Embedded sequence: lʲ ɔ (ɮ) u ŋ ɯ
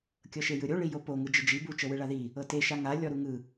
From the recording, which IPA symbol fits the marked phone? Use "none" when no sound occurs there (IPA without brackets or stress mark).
ɾ